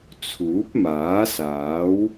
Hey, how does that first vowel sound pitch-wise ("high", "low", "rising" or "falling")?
rising